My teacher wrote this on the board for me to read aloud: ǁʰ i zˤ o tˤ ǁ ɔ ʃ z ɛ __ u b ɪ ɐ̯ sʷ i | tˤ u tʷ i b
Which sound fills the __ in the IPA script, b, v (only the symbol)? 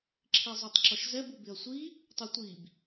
b